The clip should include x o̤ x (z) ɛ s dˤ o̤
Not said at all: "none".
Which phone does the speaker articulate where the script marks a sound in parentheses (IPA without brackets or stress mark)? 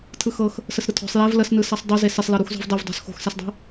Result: s